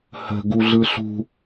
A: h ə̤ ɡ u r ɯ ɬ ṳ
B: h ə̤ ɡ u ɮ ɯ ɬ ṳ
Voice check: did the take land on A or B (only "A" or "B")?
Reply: B